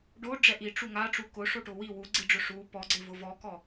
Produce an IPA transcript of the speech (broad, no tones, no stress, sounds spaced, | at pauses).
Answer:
ɖ o ɖ͡ʐ ɛ ʔ i ʈ͡ʂ u ŋ a ʈ͡ʂ u k ʊ ʂ o ʈ ʊ w i w u ɡ͡ǀ i ɖ͡ʐ ʊ ʂ u p ɔ ɡ͡ǀ ɪ v ʊ v ɔ k ɔ